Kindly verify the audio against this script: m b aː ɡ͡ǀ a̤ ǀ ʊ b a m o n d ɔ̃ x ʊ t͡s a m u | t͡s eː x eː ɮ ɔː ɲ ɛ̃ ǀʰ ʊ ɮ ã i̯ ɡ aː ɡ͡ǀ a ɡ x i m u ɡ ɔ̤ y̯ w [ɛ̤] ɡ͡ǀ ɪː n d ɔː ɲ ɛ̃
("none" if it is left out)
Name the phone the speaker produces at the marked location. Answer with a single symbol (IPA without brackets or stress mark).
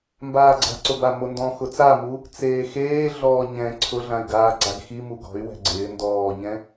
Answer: ɛ̤